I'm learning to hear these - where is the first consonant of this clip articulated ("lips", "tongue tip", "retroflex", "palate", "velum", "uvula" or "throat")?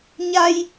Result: palate